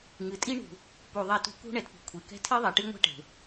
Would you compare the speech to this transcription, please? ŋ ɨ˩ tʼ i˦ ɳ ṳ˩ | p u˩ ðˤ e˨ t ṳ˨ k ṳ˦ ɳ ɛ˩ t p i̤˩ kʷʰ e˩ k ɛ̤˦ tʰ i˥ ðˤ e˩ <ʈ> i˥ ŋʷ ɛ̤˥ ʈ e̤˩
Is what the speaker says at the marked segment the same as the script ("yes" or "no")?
yes